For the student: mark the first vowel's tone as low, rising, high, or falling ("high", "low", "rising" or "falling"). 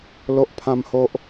low